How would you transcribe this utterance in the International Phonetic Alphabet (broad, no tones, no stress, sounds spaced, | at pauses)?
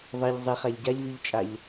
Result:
ðˤ i ʎ zˤ i χ a ʎ ɟ a ʎ v i ʎ t͡ʃʼ a ʎ